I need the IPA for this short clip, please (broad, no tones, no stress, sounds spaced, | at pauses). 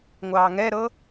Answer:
ŋʷ ɑː ŋ ɛ ɾ ɤ